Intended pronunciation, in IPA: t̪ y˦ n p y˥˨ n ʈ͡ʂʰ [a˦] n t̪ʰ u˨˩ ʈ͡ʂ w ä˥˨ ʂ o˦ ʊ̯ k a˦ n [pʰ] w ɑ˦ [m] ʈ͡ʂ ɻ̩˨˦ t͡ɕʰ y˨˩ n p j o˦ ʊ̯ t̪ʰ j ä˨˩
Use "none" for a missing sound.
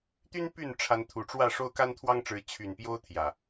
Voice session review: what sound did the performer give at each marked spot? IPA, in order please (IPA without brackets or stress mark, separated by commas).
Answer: a˨˦, t̪ʰ, ŋ